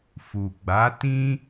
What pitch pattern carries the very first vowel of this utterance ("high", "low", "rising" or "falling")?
low